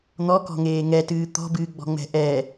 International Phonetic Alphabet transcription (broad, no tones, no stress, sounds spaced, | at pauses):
n̪ ɔ k ɔ̤ ŋ eː ŋ ɛ t ɨː t̪ ɔ̤ b ɨː ɡ͡b ɔ̤ ŋ͡m ɛ̤ ʔ ɛ